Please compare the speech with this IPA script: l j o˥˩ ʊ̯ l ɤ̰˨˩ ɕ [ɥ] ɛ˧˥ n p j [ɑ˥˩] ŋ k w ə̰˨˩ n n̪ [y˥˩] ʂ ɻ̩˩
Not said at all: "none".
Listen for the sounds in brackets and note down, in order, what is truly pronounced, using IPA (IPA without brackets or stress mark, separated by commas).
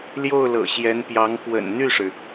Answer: j, ɑ˧˥, y˥˩